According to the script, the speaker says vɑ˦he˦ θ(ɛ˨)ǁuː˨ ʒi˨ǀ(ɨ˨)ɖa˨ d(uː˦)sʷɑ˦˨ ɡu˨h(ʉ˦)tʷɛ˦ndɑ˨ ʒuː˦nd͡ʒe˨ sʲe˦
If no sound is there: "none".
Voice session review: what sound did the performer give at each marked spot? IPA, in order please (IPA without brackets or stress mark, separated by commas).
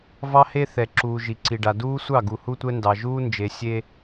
ɛ˨, i˨, uː˦, u˦